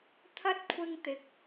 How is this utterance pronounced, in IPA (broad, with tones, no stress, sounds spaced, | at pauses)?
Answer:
t̪ʰ ɐ˥ t̚ kʷʰ ɪ˥ ŋ t̪ ɪ˨˥ k̚